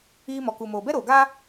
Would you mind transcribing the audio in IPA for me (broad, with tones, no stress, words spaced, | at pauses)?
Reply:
iː˧mɔ˨ku˨ moː˨bɛ˦ɾoː˨ɡaː˦